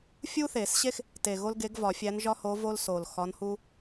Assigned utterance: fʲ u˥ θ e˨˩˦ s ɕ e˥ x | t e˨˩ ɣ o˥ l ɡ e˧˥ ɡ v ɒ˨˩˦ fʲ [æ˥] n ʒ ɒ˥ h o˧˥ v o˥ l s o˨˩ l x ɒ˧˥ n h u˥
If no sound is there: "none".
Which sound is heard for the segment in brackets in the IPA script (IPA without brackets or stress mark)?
æ˧˥